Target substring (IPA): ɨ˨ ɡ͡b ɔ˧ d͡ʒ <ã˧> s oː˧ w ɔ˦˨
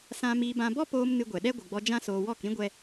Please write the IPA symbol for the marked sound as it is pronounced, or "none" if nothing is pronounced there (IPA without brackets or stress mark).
ã˦